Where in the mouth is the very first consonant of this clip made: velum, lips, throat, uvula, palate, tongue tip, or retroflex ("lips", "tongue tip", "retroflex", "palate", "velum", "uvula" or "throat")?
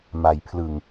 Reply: lips